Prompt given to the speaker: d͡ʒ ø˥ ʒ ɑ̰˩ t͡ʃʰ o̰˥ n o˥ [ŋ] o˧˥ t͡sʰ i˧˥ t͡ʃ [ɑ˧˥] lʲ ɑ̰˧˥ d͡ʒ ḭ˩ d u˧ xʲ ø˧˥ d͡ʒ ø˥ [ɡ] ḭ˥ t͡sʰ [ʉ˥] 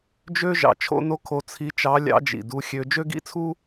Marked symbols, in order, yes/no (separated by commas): no, yes, yes, no